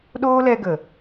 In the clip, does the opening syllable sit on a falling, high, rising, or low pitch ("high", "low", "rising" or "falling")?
high